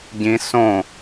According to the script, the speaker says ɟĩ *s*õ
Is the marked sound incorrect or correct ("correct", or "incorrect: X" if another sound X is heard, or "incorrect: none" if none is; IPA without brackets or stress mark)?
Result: correct